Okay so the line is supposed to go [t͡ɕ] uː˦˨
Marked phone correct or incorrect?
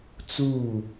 incorrect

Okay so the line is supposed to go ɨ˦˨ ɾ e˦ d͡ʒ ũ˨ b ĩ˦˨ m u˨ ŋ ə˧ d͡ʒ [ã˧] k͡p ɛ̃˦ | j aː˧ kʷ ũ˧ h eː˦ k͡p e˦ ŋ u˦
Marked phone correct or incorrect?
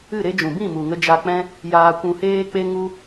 incorrect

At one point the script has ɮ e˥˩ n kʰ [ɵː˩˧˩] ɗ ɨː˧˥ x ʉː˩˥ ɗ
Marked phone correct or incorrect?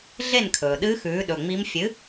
incorrect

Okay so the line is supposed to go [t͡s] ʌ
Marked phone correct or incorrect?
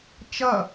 incorrect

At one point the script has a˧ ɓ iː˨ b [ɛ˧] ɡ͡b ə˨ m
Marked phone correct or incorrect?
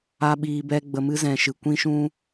correct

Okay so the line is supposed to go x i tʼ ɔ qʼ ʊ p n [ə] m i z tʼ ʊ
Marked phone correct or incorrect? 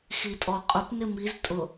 incorrect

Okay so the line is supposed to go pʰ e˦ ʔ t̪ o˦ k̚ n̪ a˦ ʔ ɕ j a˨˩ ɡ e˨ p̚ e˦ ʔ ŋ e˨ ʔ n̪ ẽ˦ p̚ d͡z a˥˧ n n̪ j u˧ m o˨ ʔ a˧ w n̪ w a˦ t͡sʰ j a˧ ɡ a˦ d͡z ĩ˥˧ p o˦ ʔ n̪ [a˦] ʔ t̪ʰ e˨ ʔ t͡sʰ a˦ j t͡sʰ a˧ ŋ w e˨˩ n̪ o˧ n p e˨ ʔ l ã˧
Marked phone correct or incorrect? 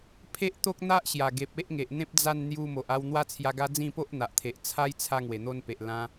incorrect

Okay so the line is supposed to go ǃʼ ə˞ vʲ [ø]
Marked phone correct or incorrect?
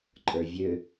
correct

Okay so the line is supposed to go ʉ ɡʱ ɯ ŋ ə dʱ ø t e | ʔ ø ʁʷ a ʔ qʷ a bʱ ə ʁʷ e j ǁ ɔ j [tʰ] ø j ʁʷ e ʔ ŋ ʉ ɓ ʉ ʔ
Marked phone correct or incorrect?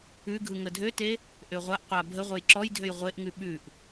incorrect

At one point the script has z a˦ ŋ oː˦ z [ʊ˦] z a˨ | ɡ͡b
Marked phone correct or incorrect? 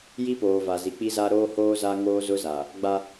correct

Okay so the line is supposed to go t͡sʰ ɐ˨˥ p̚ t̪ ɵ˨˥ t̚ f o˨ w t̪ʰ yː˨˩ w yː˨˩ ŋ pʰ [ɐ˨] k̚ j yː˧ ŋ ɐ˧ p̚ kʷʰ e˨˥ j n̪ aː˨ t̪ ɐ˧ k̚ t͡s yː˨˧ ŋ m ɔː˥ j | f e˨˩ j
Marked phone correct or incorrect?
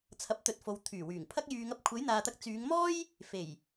incorrect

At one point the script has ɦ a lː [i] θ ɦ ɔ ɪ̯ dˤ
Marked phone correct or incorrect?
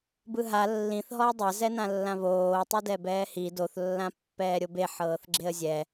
incorrect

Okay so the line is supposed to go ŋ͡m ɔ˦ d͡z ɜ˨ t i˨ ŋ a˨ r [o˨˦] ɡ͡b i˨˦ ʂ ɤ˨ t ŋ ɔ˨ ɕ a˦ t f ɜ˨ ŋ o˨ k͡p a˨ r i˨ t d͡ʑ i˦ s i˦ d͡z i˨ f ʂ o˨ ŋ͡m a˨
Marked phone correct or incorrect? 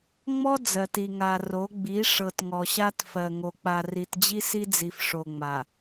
correct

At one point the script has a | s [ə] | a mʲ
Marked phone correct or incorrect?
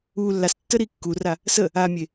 correct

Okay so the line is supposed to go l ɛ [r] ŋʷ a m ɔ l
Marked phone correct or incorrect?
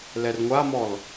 correct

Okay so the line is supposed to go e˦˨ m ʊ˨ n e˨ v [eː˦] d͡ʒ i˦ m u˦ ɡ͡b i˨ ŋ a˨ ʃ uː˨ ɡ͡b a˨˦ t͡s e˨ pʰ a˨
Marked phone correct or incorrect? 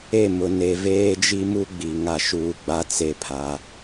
correct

